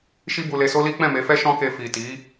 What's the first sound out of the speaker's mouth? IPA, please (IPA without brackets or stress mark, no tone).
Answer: ʃ